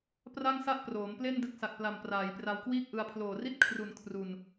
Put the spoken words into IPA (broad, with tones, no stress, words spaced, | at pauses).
pra˥˩ŋsa˥˩ʔ proː˩˦mple˥˩n dɯ˦˥k̚sa˨˩k̚pla˨˩m praː˩˦jpra˧wkwiː˥˩k̚ʔɯ˧a̯ pʰloː˨˩ri˥˩t̚ kʰru˩˦n kʰru˨˩n